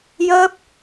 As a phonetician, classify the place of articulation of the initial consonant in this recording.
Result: palatal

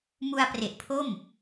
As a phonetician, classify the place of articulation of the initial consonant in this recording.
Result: labial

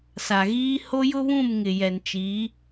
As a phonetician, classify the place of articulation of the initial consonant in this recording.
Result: alveolar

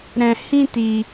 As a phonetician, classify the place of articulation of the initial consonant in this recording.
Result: alveolar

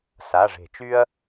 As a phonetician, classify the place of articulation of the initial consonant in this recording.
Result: alveolar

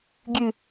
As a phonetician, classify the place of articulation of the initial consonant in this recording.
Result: velar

